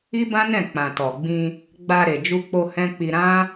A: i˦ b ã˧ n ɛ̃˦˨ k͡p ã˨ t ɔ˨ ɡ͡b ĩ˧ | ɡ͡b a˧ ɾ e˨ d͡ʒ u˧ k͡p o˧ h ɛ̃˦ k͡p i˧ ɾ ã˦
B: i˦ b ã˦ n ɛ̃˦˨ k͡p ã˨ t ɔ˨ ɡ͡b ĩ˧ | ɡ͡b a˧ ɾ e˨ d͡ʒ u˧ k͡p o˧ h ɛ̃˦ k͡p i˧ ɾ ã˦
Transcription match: B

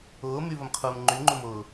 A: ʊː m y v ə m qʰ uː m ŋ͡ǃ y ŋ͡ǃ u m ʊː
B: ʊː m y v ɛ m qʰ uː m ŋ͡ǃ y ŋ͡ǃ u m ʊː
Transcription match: A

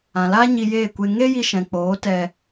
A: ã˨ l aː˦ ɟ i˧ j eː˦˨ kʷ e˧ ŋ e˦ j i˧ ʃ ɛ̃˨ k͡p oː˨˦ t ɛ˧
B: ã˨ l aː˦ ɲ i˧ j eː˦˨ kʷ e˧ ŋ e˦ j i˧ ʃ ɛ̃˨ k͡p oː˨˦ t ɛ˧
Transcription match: B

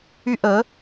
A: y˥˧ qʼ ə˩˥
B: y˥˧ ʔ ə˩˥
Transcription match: B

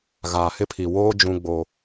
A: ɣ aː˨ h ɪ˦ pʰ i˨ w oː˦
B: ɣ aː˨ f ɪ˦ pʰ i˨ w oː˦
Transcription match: A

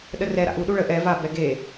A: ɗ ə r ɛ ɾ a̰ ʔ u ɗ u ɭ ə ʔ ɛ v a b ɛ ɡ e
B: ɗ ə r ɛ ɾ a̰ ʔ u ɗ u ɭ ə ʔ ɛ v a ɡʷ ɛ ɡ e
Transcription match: A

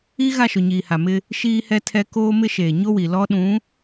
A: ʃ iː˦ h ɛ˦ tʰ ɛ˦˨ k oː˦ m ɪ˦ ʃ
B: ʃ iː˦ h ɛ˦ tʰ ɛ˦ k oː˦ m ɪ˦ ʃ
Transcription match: B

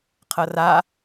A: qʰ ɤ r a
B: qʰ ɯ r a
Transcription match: A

